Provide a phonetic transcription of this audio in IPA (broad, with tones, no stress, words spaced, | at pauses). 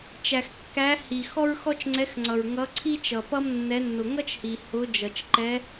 t͡ʃæ˨xkːæ˧˥hi˨ xɔ˥ɹxɔ˥t͡ʃŋ͡ǀɛ˧˥xŋ͡ǀʌ˨ɹ ŋʌ˧˥ǀʰi˥t͡ʃʌ˨ pʌ˥mnːɛ˧˥nːʊ˨ ŋʌ˥t͡ʃhi˨ hʊ˧˥d͡ʒʌ˨t͡ʃ ǃɛ˧˥